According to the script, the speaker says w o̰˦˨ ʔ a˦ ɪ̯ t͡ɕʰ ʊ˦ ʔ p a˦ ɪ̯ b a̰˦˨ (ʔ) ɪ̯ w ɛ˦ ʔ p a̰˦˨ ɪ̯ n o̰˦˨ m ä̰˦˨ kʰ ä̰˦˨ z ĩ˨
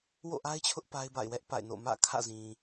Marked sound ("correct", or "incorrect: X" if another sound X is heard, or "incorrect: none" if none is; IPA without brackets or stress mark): incorrect: none